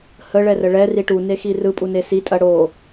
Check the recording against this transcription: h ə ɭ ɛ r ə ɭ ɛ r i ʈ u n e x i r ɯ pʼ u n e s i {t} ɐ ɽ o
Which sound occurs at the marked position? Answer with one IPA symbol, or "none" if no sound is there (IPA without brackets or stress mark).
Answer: tʼ